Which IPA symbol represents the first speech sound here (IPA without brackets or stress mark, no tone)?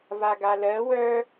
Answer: v